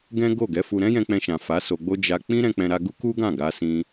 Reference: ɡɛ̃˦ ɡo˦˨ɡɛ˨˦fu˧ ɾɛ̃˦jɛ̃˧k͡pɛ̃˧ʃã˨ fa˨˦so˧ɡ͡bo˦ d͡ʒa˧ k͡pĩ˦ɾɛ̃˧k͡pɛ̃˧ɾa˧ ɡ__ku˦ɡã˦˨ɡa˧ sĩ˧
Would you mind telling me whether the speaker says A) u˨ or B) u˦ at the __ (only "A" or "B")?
B